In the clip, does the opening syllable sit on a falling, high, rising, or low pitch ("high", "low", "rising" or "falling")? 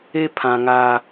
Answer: high